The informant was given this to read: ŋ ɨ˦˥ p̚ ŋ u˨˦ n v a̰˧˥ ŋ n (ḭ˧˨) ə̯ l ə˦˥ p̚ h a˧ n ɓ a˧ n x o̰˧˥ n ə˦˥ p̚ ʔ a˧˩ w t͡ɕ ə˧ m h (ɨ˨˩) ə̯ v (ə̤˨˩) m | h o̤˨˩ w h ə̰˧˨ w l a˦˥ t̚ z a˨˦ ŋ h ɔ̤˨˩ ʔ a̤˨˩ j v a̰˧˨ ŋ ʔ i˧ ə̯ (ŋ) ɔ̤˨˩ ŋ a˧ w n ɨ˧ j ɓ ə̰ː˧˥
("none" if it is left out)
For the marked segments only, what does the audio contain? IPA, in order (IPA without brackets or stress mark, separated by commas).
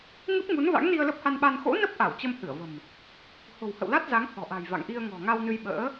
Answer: i˧, ɨ˧˩, ə̤˨˩, ŋ